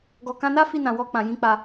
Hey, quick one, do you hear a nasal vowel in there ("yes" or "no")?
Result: yes